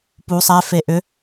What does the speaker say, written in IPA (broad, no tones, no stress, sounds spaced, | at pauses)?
p u sˤ ɛ f e ʔ ʏ